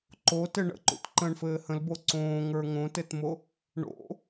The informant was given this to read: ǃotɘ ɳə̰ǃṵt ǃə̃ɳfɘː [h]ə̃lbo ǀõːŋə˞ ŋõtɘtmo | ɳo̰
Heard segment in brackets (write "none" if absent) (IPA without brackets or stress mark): h